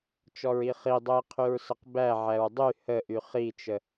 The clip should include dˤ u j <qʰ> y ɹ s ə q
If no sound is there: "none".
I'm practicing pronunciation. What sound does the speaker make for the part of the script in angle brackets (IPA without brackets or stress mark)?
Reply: qʰ